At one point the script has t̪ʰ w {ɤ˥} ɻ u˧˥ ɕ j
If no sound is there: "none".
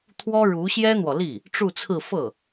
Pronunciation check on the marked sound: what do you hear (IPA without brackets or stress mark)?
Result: ɔ˥